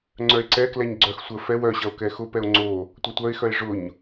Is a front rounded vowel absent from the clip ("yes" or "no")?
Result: no